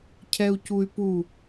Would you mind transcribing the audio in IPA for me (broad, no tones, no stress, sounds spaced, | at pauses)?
cʰ ɛ u̯ c u y̯ p u